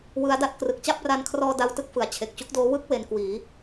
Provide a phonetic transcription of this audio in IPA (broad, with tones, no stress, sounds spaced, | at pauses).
w ɯ˦˥ a̯ d a˦˥ t̚ k r ɯ˨˩ k̚ t͡ɕ a˥˩ p̚ r a˧ n kʰ r ɔː˧ d a˦˥ w t ɯ˦˥ k̚ f ɯ˩˦ a̯ t͡ɕʰ e˨˩ k̚ t͡ɕ u˦˥ k̚ d oː˦˥ w ɯ˦˥ k̚ w e˧ n k w iː˩˦